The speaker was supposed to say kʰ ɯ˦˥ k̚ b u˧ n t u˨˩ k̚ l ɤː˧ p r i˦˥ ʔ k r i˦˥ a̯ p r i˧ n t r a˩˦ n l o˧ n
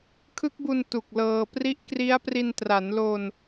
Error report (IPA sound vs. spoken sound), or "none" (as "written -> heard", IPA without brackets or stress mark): none